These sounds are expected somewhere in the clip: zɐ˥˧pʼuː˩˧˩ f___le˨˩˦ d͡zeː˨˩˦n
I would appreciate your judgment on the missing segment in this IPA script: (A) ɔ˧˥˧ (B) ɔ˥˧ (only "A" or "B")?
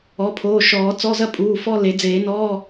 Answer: B